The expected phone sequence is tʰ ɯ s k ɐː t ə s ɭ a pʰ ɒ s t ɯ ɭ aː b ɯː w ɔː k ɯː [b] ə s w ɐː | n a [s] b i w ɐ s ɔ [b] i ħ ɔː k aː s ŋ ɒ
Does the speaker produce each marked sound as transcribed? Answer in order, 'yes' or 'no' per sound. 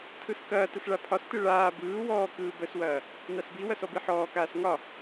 yes, yes, yes

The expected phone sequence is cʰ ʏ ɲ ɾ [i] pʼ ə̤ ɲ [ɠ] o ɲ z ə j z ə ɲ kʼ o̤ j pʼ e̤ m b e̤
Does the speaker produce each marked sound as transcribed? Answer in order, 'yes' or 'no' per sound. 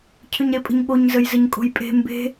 no, yes

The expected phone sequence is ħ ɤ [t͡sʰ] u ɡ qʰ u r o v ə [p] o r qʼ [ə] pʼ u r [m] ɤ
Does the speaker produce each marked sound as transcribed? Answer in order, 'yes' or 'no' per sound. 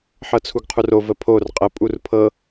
yes, no, yes, no

